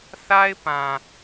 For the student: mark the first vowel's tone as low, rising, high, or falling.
high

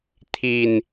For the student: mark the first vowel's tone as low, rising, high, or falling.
low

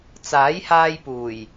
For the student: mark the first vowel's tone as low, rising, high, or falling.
rising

